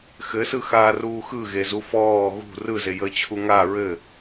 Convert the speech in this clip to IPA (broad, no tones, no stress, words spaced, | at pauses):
xɘsɯxaːruː xɯɣezu fɔː ɣṳ rɯzejəːt͡ɕʰu ŋa ɹɘ